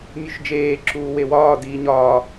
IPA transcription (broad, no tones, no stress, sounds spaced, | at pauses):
mʲ u ʃ d͡ʒ eː ǁ uː w e w ɒː d iː ɲ ɒː